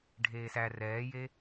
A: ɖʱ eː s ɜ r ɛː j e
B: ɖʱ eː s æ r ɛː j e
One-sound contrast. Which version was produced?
B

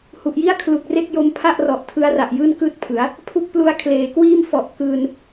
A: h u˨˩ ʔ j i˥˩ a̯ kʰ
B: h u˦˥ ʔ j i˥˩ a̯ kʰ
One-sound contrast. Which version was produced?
A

